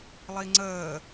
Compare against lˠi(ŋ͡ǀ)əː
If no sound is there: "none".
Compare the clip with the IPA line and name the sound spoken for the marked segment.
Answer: ŋ͡ǀ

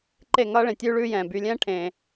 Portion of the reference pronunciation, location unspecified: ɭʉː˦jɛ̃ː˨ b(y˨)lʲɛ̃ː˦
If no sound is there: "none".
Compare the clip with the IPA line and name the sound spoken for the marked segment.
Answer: y˨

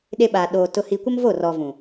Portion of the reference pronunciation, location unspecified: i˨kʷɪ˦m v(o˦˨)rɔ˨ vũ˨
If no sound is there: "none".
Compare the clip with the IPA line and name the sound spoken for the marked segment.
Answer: o˦˨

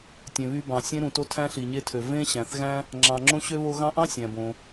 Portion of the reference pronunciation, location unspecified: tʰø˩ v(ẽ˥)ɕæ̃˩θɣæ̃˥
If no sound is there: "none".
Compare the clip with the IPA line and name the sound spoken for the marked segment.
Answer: ẽ˥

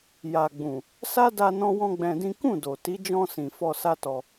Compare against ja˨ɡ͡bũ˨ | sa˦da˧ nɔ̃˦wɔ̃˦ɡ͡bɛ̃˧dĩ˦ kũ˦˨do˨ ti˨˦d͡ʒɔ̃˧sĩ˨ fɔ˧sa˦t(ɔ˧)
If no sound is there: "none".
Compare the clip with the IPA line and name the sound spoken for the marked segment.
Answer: ɔ˧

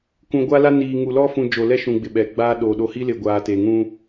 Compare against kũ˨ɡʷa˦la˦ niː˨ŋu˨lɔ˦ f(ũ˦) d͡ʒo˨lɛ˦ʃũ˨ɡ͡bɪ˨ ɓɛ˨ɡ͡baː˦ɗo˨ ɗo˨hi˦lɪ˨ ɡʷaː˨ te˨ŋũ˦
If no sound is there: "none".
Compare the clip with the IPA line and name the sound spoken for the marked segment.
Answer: ũ˨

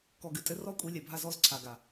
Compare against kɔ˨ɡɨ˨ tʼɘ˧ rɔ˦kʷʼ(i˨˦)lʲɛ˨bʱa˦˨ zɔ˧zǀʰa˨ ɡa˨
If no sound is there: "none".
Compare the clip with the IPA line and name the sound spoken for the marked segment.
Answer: i˨˦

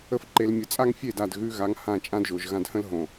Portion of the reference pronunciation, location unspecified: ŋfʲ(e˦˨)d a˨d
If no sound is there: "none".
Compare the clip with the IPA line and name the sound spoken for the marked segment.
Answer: e˦˨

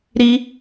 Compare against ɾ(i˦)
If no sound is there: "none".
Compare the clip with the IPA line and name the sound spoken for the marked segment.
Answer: i˦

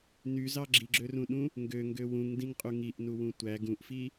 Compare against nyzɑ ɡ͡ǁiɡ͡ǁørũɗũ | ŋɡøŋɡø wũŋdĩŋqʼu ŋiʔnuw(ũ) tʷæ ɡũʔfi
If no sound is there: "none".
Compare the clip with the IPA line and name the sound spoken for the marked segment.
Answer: ũ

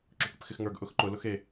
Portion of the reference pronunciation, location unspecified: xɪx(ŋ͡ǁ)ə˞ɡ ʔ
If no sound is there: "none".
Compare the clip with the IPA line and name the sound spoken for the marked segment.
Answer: ŋ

